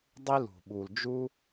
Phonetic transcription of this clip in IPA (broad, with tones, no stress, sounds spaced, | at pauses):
dˤ i˦ l ṳ˨ ɓ uː˨ l d͡ʒ u˦